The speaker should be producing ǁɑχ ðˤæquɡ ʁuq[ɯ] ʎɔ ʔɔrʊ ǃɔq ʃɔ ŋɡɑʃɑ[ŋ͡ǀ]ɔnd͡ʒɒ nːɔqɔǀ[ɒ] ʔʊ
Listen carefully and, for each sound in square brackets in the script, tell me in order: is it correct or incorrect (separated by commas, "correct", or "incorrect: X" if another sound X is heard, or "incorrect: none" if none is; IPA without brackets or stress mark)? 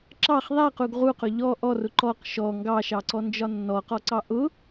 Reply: incorrect: ʊ, incorrect: ǀ, incorrect: ɑ